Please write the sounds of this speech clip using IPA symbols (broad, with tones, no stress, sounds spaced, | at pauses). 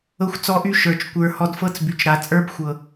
ɤ˧ xʷ t͡s ɔ˧ ʔ y˧ ʃ ə˞˨ t͡ʃ kʷ ə˞˨ h ɔ˧ d f ɤ˦ t͡s b y˨ t͡ʃ ɾ a˨ t͡sʼ ə˞˦ b xʷ ɤ˨